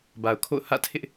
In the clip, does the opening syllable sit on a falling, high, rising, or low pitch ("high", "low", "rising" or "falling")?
low